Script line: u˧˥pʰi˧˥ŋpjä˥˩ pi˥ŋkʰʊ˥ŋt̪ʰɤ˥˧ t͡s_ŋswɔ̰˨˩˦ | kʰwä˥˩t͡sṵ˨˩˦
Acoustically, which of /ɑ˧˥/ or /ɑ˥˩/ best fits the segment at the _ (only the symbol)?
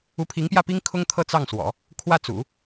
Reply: ɑ˥˩